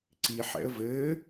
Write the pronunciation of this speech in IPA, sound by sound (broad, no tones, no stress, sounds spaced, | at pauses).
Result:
ǀ i ħ ɛ̰ ə̯ v ɘː